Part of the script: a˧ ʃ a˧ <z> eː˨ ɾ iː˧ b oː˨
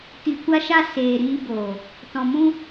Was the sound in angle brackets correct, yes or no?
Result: no